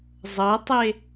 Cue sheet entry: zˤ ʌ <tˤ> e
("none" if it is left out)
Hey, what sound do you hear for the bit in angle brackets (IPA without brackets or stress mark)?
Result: tˤ